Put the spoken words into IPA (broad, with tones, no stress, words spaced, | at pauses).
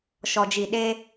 ʃɔ˨d͡ʒi˨ɗeː˦